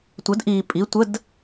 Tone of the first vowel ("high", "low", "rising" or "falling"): rising